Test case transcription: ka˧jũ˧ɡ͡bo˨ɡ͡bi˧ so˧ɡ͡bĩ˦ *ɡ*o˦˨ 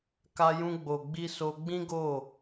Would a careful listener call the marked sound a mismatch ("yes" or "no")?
no